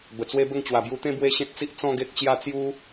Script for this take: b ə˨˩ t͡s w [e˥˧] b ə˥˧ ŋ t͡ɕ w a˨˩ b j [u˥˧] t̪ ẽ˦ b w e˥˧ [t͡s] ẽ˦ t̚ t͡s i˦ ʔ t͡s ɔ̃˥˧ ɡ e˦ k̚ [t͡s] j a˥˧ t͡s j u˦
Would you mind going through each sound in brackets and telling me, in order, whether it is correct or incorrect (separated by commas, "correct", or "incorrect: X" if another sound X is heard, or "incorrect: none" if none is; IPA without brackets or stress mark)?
incorrect: e˦, incorrect: u˧, incorrect: ɕ, incorrect: t͡ɕ